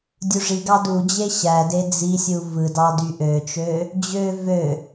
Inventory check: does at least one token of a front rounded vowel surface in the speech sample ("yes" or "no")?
yes